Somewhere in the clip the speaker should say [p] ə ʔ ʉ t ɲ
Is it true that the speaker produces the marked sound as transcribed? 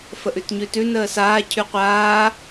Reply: no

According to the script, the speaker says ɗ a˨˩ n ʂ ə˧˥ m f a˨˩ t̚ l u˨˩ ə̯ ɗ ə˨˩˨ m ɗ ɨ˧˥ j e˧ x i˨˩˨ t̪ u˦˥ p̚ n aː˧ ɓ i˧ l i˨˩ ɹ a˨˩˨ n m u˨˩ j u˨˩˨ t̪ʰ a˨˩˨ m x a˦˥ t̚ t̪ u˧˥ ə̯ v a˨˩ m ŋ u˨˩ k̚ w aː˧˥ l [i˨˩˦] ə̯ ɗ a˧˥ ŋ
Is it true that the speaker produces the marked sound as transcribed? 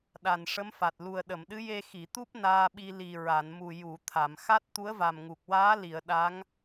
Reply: no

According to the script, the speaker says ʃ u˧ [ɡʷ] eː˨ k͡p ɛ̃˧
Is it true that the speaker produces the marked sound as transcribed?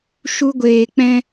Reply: yes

